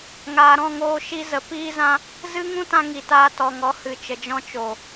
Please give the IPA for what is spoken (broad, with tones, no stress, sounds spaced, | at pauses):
ŋ aː˨ ɾ ɔ̃˦˨ ŋ oː˧ ʃ i˧ z ə˨ p iː˦ z ã˦ | z ɨ˦ ŋ ũ˦ t ã˧ ŋ i˨ t aː˧ t ɔ˨ ŋ ɔ˨˦ h ɨ˨ t͡ʃ ə˨ d͡ʒ ɔ̃˧ t͡ʃ o˨